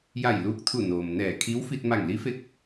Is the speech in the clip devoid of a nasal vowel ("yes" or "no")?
yes